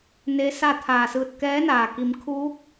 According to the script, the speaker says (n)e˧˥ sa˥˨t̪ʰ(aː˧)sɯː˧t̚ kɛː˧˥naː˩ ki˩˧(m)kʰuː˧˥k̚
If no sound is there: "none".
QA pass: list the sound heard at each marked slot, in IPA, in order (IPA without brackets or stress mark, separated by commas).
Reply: n, aː˧˩, m